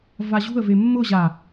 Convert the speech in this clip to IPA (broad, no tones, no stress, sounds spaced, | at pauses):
v a ʑ ṳ ə̯ v e mː ʊ ʑ a